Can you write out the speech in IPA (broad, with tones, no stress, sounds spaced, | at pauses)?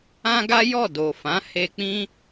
ã˦ ɡ a˦ j ɔ˦˨ d o˨ f ã˨˦ h e˧ k͡p ĩ˦